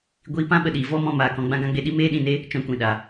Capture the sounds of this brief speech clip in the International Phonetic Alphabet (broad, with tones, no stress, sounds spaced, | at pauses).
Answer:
ɡʷ iː˧ p ã˦ ɓ ə˧ ɗ iː˨ v ɔ˦ m ɔ̃˧ m aː˨ k ɔ̃˧ ɡ͡b ã˧ ɡ ã˧ ɡ͡b e˧ ɗ i˦ m eː˦ ɗ ĩ˦˨ n e˦ | t͡ʃ ɔ̃˧ kʷ ĩ˨ ɗ a˨